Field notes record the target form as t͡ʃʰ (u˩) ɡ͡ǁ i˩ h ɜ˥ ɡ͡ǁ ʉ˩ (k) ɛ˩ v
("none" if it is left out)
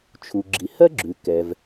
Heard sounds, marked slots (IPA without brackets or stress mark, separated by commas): u˩, k